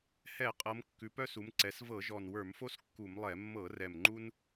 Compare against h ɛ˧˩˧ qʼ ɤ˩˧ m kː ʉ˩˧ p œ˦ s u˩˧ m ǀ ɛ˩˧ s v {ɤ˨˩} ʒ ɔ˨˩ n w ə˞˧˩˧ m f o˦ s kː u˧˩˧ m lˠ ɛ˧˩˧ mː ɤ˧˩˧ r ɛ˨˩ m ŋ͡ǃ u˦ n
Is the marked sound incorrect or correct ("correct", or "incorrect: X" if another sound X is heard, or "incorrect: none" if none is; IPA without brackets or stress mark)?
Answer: incorrect: ɤ˧˩˧